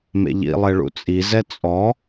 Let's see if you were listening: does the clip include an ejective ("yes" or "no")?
yes